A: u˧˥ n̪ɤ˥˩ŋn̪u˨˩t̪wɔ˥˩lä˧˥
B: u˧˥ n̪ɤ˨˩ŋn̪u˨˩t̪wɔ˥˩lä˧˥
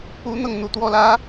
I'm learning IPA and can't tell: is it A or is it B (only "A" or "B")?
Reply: A